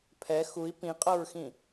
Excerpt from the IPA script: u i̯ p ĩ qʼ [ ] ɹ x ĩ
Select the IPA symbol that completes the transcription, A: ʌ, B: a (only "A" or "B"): A